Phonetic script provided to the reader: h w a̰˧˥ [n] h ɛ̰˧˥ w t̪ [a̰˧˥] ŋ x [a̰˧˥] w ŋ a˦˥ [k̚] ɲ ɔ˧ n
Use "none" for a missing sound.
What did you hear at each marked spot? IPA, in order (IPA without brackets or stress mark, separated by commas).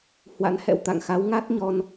n, a̰˧˨, a˨˦, t̚